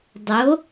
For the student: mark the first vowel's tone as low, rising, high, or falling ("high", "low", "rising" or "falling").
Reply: rising